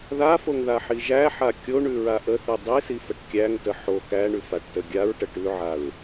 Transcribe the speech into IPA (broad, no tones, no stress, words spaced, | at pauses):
ðafoŋðaħi ʒæħa kʲoɳʉɹa ʔəθi dˤisifəʈ kʲæŋtə ħo kæɳʉfaʈtə ɡʲaɹʈə ʈʉʕaɹ